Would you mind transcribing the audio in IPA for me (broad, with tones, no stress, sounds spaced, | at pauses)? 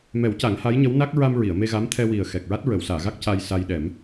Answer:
m ɛ˨˩˦ w c a˨˩˦ ŋ h a˧˥ j ɲ ə˧˥ w n a˦˥ k̚ ɹ a˧ m ɹ i˨˩˨ ə̯ m e˧ ɣ a˧˥ m t̪ʰ ɛ˧ w i˨˩ ə̯ x ɛ˨˩ k̚ ɹ a˦˥ t̚ ɹ ə˨˩˨ w s aː˨˩˨ ɣ a˦˥ k̚ c a˧ j s a˧ j ɗ ɛ˨˩˦ m